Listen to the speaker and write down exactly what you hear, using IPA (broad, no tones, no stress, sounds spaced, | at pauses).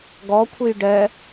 ɡ ɔ kʷʰ ɨ j ɖ ɛ